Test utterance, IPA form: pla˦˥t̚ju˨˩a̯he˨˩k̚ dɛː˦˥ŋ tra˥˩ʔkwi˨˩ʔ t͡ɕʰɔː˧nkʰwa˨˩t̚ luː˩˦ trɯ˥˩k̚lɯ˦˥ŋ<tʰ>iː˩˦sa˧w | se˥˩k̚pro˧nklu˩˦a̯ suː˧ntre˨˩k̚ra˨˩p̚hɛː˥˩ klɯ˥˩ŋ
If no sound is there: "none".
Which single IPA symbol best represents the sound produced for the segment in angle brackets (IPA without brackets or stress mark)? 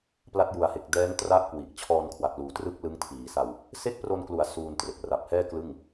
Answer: tʰ